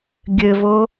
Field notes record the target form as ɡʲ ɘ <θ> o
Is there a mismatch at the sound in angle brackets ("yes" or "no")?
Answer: yes